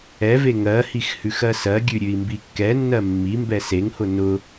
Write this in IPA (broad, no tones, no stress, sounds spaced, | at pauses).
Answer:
ɛ v e ŋ ɜ h i x h ʉ x ɜ s ɜ ɡʲ ʉ ɾʲ ʉ i̯ m b i kː ɛ nː ɜ mː i m b ɛ s e ŋ h ʊ n ʊ